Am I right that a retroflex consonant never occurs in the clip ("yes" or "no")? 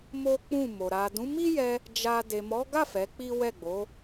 yes